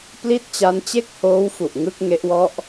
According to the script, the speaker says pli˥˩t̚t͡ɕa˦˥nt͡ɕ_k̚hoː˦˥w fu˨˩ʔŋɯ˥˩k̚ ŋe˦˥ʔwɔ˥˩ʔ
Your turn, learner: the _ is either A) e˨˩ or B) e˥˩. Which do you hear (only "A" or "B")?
B